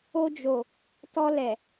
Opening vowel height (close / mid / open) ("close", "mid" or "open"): mid